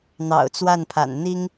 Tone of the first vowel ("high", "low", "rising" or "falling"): low